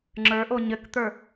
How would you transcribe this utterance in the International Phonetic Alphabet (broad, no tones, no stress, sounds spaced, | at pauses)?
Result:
ŋ͡ǁ ə˞ ʔ o ɲ ɘ k t̪ ə˞